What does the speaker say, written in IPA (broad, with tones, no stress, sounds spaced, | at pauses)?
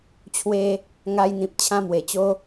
t͡ɕʰ w e˧ | ŋ a˧ j n̪ ĩ˨ p̚ t͡ɕʰ ã˦ m w e˨˩ t͡ɕ o˦